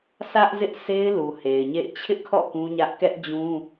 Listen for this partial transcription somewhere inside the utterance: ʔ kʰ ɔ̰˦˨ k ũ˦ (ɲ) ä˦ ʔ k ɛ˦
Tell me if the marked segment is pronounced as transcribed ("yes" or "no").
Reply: yes